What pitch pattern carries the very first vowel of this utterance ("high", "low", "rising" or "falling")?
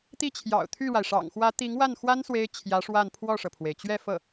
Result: falling